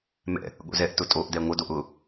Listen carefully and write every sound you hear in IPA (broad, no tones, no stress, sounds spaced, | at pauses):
m ɛ̰ | ɠ o̰ z ɛ ʔ t ʊ tʼ o ʔ d ɛ ŋʷ ə d o ʔ ʊ